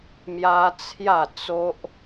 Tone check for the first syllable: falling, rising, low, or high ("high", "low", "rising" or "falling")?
high